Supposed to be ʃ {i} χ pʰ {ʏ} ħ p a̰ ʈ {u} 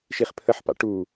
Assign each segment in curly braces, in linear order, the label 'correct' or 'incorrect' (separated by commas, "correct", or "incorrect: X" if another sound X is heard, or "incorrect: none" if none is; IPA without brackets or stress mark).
correct, incorrect: ə, correct